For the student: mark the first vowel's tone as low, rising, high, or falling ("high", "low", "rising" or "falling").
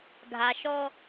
low